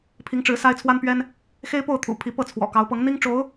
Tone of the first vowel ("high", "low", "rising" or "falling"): rising